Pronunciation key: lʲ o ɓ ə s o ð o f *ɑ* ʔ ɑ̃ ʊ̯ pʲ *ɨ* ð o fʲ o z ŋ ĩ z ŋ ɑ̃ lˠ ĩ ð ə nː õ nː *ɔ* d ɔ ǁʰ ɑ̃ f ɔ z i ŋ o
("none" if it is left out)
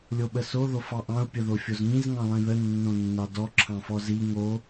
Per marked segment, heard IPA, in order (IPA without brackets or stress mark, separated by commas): ɑ, ə, ɑ